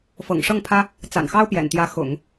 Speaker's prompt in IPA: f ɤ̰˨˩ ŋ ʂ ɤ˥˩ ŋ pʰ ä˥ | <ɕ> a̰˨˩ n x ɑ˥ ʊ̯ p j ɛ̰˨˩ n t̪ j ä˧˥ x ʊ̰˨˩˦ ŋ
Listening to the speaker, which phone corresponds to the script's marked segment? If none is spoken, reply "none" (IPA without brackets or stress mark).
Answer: t͡s